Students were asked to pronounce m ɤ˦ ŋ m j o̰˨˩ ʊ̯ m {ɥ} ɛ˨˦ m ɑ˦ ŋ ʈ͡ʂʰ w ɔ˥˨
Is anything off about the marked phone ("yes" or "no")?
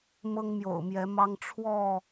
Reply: yes